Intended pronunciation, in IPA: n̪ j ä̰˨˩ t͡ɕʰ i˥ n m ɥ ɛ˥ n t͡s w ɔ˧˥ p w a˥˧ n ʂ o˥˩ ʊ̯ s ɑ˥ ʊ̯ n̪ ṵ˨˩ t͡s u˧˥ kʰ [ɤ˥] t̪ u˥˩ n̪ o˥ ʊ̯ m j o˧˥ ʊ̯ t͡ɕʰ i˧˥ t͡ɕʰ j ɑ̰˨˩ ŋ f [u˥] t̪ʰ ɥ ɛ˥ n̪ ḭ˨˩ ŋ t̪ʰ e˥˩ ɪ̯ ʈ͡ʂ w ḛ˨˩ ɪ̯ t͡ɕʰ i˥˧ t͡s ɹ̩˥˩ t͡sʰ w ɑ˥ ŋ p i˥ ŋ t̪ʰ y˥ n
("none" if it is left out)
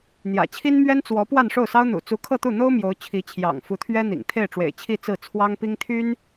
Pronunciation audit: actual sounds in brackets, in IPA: ɤ˥˧, u˧˥

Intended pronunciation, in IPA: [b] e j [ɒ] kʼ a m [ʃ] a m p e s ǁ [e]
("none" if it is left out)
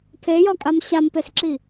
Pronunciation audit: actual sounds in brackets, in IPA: pʰ, ɒ, ɕ, i

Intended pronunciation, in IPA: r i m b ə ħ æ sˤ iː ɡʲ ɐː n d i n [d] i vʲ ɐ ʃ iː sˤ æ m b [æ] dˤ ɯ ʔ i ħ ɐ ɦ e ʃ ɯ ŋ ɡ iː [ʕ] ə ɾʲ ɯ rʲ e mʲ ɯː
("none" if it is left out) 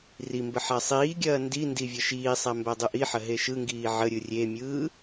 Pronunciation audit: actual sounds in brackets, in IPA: d, æ, ʕ

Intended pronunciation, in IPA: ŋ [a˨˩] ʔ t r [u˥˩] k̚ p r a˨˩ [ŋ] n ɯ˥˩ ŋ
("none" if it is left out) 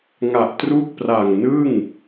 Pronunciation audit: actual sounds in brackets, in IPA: a˨˩, u˥˩, ŋ

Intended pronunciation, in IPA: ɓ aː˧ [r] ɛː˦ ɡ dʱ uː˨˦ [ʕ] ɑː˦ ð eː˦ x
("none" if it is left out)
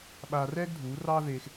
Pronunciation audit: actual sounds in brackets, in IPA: r, r

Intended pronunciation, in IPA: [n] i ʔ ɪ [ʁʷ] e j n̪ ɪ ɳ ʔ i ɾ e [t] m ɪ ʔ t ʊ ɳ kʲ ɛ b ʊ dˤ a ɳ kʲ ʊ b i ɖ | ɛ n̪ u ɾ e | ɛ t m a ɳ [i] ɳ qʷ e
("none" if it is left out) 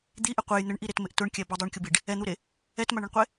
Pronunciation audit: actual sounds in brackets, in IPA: d̪, qʷ, t, ɪ

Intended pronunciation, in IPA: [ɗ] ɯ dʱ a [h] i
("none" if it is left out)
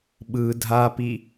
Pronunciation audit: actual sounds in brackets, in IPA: ɓ, p

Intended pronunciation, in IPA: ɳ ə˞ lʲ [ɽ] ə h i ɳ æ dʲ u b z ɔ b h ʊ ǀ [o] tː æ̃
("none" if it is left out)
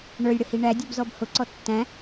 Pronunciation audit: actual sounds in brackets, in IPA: ɽ, ɔ

